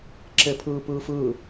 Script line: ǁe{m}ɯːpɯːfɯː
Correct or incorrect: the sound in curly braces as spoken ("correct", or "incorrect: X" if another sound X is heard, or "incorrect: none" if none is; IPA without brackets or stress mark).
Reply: incorrect: pʰ